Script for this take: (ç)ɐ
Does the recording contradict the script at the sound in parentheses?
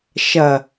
yes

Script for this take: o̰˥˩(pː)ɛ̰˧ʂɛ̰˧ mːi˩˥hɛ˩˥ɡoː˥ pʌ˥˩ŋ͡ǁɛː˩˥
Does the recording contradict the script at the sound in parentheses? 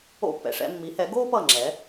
no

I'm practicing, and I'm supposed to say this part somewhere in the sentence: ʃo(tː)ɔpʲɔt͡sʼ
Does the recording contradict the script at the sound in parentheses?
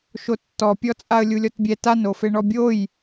no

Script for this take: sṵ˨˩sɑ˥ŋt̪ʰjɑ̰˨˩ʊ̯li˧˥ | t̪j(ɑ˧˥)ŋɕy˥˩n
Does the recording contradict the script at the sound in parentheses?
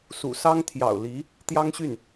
yes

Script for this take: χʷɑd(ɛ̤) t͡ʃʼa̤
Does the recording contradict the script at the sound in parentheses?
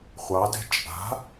no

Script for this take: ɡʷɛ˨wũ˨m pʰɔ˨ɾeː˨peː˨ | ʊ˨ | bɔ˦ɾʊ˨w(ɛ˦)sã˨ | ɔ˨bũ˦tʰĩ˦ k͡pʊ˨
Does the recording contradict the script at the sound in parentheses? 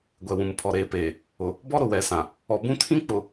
yes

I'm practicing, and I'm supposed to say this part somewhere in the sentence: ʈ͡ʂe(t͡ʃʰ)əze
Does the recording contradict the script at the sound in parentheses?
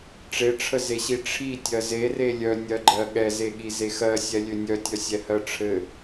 yes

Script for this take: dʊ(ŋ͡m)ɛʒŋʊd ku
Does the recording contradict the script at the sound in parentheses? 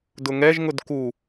yes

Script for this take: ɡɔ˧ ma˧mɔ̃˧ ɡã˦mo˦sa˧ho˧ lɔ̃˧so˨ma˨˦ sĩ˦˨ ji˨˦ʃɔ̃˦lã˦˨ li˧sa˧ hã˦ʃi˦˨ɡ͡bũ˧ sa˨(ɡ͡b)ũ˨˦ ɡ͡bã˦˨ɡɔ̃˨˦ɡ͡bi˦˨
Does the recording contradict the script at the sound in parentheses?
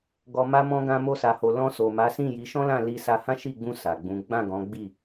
no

